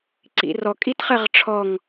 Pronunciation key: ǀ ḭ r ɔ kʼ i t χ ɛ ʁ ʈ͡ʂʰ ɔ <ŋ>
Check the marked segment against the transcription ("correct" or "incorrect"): correct